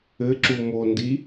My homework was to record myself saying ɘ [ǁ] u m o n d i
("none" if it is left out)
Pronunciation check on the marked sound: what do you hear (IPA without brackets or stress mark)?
ǁ